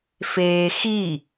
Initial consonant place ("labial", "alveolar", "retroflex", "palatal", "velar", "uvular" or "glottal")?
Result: labial